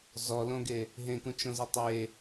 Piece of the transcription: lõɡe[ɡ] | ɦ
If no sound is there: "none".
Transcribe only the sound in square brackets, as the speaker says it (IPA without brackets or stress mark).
none